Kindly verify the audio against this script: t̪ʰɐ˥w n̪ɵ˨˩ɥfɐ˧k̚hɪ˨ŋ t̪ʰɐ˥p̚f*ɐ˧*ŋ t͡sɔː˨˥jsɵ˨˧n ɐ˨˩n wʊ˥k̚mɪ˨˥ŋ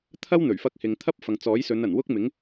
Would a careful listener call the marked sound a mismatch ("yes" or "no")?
yes